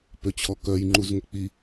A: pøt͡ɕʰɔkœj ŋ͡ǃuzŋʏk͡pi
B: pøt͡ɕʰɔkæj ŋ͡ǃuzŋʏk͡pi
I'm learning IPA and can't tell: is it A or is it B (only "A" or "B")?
A